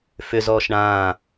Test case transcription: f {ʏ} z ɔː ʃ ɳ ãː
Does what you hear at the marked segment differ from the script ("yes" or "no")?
no